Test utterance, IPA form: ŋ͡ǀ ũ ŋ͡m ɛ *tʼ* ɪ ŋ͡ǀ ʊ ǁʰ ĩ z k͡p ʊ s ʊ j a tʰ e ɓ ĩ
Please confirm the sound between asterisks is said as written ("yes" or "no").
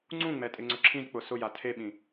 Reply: yes